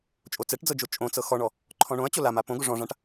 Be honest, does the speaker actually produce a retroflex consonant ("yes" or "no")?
yes